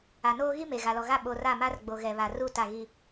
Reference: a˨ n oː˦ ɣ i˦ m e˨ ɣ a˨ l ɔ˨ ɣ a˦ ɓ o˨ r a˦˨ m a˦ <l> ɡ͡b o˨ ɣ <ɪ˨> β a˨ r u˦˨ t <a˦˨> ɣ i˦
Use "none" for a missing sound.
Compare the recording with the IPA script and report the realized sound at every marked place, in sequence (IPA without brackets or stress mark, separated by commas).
r, ɛ˨, a˦˨